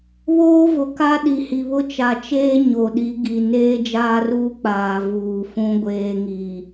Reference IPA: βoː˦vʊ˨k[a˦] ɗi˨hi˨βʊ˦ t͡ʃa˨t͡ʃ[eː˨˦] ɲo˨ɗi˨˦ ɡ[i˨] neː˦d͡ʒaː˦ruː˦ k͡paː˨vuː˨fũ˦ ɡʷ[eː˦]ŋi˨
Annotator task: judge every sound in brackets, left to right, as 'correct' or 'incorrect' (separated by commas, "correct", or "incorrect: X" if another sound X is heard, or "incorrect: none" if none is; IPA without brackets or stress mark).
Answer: correct, incorrect: eː˦, correct, correct